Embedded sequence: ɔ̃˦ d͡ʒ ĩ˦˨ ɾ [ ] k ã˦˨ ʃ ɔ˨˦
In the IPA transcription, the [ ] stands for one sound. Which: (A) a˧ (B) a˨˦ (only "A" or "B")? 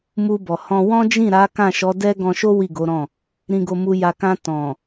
B